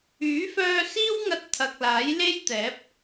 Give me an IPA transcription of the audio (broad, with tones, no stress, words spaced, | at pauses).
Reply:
yː˨˥fœː˧ siː˥wŋɐ˧t̚ t̪ʰɐ˨k̚laː˨˥jle˥jt̪ɛː˨˥p̚